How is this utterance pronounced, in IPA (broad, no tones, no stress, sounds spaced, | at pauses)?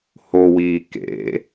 h o w iː k ḛ